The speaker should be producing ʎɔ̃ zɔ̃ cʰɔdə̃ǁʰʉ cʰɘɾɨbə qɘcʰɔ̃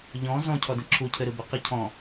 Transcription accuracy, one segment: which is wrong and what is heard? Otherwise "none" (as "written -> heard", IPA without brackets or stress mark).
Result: ʉ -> u